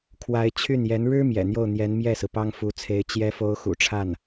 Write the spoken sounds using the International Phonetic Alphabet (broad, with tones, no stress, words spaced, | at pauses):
kʰwa˧˥ɪ̯ t͡ɕʰy˥˩njɛ˧˥n ɻɻ̩˥ mjɛ̰˨˩n̪jo˥˩ʊ̯ n̪jɛ˧˥nmjɛ˥˩sɹ̩˩ pɑ˥ŋfu˧˥t͡sʰe˧˥ɪ̯ t͡ɕjɛ˧˥fo˧˥ʊ̯ xṵ˨˩ʈ͡ʂʰa˥˩n